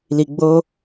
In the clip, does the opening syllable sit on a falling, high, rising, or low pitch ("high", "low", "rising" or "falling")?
low